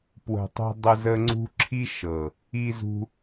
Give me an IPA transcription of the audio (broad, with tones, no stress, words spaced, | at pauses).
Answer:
pwə̤˨tˤṳ˧ dˤə˧zə˧ŋ͡ǀṳ˦ ǁʰi˦ʃɤ˨ | i˧zṳ˧